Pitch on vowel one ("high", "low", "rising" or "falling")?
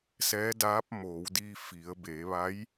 rising